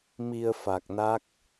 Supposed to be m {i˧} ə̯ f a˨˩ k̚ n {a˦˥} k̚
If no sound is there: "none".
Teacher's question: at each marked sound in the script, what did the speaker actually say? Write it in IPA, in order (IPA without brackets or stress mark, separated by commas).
i˧, a˦˥